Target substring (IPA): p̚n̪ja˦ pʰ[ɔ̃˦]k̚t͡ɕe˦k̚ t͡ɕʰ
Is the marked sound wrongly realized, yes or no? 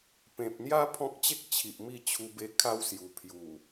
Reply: no